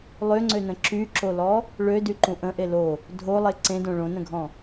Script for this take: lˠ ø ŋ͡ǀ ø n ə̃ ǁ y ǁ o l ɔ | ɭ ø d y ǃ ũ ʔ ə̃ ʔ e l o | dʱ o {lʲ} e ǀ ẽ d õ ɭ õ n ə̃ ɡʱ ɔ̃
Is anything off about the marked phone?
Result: yes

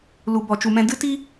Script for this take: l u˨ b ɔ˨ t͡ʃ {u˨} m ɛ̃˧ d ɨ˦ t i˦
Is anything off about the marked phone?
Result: no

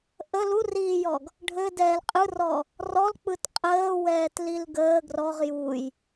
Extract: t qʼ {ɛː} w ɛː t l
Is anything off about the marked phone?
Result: yes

